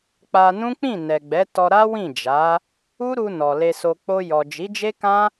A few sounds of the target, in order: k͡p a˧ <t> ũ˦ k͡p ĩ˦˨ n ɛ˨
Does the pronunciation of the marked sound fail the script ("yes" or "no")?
yes